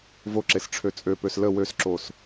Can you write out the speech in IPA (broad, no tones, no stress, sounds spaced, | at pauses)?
v o ǁ e s ʈ͡ʂʰ ø t͡sʼ ø p ø s l ə w ø s ǁ o s